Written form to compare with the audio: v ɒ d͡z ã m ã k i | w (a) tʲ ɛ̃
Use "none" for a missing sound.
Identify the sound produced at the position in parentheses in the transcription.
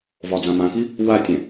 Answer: a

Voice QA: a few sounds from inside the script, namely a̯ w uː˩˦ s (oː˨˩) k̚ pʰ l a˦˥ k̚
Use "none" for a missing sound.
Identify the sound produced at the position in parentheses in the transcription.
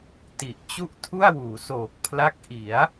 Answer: oː˨˩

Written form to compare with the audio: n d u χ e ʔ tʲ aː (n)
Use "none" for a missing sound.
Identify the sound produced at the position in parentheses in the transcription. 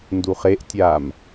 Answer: m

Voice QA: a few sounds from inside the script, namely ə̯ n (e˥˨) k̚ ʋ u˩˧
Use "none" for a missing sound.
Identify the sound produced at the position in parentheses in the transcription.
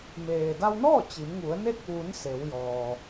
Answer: e˥˨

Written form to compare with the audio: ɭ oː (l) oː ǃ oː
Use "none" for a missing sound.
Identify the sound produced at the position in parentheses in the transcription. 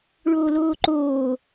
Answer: l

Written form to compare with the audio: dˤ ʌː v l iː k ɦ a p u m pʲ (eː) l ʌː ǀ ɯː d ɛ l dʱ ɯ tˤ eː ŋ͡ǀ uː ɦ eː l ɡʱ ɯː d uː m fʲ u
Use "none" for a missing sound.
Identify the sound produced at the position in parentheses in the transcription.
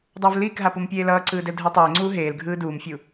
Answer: eː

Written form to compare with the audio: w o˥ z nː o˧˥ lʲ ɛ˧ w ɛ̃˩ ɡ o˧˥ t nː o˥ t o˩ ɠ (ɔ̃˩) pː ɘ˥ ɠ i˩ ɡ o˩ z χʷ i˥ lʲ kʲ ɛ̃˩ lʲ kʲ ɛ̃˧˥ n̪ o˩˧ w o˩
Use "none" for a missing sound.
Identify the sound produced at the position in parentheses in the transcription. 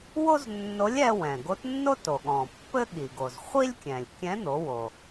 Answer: ɔ̃˩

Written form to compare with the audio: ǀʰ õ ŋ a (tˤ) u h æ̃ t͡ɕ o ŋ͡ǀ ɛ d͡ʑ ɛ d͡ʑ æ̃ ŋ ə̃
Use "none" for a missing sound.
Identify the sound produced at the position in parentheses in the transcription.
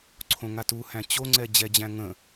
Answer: t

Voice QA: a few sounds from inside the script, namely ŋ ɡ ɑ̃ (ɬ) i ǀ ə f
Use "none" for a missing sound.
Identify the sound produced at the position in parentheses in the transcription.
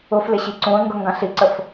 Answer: ɬ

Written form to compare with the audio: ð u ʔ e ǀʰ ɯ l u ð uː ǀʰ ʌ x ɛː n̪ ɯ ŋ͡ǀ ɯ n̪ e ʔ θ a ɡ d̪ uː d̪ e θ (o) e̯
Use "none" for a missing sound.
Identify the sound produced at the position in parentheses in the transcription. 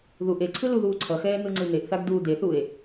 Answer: u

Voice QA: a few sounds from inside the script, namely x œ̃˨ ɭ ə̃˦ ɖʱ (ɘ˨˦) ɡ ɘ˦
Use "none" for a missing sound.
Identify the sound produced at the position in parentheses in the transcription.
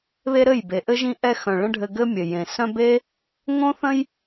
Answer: ɘ˧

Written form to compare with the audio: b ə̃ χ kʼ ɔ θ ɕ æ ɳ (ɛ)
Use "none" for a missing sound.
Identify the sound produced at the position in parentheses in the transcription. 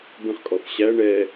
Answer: ɛ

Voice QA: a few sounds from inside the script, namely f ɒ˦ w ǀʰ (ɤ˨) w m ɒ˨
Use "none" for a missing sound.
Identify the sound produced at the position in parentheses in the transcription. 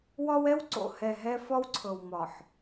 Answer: ɤ˨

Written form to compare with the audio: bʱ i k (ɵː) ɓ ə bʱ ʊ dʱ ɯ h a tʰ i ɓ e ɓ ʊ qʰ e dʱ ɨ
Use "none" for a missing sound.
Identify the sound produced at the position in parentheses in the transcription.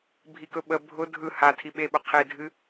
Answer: ɵ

